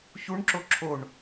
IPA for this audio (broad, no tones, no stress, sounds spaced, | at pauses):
ç u ɳ ǁ o ǁʰ o ɳ